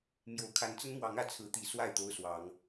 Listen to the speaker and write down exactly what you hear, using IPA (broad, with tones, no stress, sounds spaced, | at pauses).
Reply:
m j o˨˩ ʊ̯ kʰ a˨˦ n t͡s ə˦ n m w ɑ˨˦ ŋ ä˨˦ t͡sʰ ɹ̩˨˦ t̪ i˨˩ s w a˥˨ ɪ̯ t̪ o˦ ʊ̯ s w ɑ˨˦ ŋ